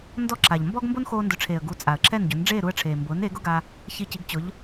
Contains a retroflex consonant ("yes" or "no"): yes